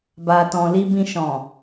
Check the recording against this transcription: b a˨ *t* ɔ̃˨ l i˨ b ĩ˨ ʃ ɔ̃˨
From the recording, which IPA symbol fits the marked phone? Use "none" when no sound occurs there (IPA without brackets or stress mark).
t